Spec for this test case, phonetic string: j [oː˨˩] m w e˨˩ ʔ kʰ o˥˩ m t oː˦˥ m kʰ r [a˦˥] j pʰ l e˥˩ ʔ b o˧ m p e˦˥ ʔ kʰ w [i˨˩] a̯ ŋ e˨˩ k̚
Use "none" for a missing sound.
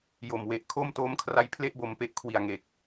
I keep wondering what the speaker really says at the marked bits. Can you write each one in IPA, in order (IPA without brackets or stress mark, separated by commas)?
o˨˩, a˦˥, i˨˩